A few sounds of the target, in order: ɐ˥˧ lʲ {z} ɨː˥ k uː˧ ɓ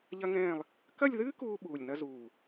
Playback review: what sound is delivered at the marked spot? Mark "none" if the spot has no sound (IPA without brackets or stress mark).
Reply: ð